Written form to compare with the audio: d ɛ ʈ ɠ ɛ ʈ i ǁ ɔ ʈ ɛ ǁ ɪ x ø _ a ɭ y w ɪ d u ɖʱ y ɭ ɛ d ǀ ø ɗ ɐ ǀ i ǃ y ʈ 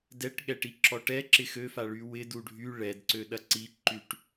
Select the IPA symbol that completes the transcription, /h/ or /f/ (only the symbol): f